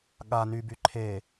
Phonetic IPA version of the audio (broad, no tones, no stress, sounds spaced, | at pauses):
ɠ a n y b y ǃʰ e